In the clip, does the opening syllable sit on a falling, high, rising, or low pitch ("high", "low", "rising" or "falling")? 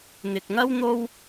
low